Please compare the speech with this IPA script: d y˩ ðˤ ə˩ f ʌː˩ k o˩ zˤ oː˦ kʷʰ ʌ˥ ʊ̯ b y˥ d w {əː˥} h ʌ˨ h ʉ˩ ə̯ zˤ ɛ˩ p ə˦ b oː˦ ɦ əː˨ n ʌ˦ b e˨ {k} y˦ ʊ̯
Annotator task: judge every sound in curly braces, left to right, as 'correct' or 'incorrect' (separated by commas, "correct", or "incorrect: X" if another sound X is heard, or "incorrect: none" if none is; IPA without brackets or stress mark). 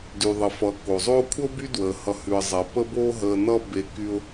incorrect: əː˩, correct